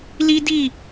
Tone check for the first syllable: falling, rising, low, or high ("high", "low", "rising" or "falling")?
high